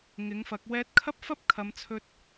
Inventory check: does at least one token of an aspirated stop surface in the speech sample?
yes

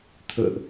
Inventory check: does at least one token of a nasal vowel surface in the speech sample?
no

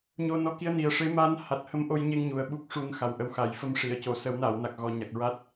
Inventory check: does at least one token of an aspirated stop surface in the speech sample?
no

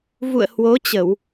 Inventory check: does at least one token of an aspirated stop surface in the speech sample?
no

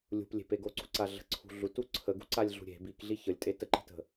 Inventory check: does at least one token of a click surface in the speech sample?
yes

